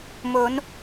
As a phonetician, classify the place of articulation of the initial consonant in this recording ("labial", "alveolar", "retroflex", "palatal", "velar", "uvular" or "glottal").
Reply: labial